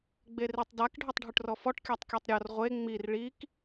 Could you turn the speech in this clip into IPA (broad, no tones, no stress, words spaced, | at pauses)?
ɡ͡beritˤdak ɖʱøtˤɖʱuʈrɔfɔʈ kʲatˤkʲɔtˤɾʲɔr ʁʷe ŋ͡mir ɭik